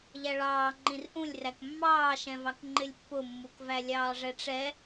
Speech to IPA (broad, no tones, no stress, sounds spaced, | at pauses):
ʎ æ ɭ ɑː ŋ͡ǃ ĩ r ʔ ũ lʲ r æ k mː ɑː ʃ ɛ̃ v ɑ k ŋ͡ǃ ɪ lʲ pː ʊ mː u k v æ lʲ ɑː ʐ ɛ ʈ͡ʂ ɛ